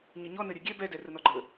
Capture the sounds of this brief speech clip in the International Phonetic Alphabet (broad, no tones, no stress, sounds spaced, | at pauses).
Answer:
ɲ ə ɲ ɔ n ɘ ɾʲ ə ɡʲ ɛ b ɛ d ɛ r ə n ɔ ɡ͡ǃ ə